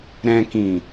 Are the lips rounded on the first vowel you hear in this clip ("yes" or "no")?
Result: no